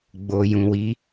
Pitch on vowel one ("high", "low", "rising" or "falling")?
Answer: low